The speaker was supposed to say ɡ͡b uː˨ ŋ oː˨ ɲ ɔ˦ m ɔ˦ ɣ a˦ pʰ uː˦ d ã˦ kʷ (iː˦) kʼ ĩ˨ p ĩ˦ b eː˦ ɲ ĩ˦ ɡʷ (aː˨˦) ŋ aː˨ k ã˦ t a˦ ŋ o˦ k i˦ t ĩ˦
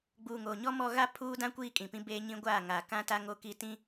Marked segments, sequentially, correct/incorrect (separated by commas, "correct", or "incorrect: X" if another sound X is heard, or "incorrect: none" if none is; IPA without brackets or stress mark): correct, incorrect: aː˦˨